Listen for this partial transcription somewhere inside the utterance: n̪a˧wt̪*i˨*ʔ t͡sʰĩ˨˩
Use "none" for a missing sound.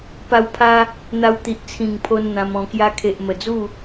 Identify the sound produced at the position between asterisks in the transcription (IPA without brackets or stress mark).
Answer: i˨